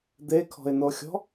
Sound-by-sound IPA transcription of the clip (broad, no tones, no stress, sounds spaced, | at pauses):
d̪ e kʰ ɔ̤ ɪ̯ n o xʲ ɔ̤